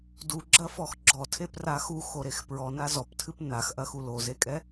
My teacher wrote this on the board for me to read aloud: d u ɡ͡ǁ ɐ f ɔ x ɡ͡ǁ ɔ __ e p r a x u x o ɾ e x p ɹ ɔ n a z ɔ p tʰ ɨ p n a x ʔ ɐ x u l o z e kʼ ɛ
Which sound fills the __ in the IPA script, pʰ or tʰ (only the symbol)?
tʰ